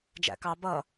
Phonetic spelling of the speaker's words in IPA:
d͡ʒæ̰kɑ bʌ

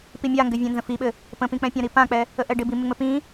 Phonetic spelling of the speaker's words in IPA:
pimʲaŋɡɘ vʲɛ̃nzə̃fiɓɘ | pə̃pĩk͡pɛ̃ pʲãɾipãk͡pɛ | əʔɛɖɪbi mɪŋ͡mɘpĩ

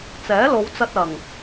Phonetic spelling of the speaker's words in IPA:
t͡sɛː˨˥lo˨˧wt͡sɐ˧t̚ ɐ˨˩ŋ

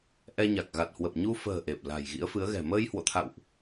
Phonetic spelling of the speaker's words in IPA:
ʔɛ˧ɲa˨˩k̚ ɣa˨˩t̚hwə˨˩p̚ ɲu˧fə̤ː˨˩ ʔe˨˩p̚la̤˨˩j ɣḭ˧˥ə̯fɨ˨˦ə̯ɣɛ̤˨˩ məː˧j hwo̰˧˨t̪ʰa̰˧˨wʔ

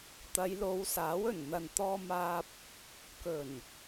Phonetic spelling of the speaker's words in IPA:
t̪ɐ˨˧jlo˨˧wsaː˨˥w ɵ˨˩nn̪ɐ˨nt̪ɔː˧maː˧p̚ | kɵ˨˩n

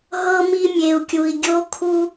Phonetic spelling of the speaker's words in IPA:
ɦɤ˦mi˦mʲe˨u̯kʲu˨i̯ ɡʲo˦kʰu˦

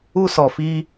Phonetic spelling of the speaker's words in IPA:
u˧sɔ˨ fi˧

